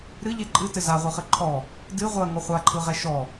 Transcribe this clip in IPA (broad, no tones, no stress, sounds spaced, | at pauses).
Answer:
ɾ ɨ ʎ e ǃʼ ɨ t ɘ z a ʁʷ ɯ χ ɘ ǃʰ ɔ | d ɨ ʁʷ ɜ ŋ ɔ χʷ a ǃʰ ɯ ʁ ɛ ʃ ɔ